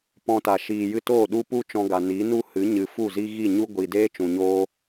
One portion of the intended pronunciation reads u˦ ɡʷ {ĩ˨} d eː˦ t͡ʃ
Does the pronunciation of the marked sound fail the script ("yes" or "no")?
yes